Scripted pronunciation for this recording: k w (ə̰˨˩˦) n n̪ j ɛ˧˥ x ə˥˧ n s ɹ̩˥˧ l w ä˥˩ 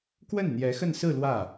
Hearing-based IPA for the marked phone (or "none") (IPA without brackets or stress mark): ə˥˩